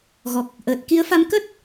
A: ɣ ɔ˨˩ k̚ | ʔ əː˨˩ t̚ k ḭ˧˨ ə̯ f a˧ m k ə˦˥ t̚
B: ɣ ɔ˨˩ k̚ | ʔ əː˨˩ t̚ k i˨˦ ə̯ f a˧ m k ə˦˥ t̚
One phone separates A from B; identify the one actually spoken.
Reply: B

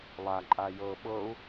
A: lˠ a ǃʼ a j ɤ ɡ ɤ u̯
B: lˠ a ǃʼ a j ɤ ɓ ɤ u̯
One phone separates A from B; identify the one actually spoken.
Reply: B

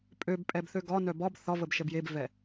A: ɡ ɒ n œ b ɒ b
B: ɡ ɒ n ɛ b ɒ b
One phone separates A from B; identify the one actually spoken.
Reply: A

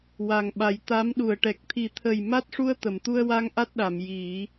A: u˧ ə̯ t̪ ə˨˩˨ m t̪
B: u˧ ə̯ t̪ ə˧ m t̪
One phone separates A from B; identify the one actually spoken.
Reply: A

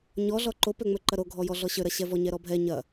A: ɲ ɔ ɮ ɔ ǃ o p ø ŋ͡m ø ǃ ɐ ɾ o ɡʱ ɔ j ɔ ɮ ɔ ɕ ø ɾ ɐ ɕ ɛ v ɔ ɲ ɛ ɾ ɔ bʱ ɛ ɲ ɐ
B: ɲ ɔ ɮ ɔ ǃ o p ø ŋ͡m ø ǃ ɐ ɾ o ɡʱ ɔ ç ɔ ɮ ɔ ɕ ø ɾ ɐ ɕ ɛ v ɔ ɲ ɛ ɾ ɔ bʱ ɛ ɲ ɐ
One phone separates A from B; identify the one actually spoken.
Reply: A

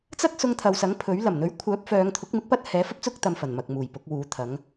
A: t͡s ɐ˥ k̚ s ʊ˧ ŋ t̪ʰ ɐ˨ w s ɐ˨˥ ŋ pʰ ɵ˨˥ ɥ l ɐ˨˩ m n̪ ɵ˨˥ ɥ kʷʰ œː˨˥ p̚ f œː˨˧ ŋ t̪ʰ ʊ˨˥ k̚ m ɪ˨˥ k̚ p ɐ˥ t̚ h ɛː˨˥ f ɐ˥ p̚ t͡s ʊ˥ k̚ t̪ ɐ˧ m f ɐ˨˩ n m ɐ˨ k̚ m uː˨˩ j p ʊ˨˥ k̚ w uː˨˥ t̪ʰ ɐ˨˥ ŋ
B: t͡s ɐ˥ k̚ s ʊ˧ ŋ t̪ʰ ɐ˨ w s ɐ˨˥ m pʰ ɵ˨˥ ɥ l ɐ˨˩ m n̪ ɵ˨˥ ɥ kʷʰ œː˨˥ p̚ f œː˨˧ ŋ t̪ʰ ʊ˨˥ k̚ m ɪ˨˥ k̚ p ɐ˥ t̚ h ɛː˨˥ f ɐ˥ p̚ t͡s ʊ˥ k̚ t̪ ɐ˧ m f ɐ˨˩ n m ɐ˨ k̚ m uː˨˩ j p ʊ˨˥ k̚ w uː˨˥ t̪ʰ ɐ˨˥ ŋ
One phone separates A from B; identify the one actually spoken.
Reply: A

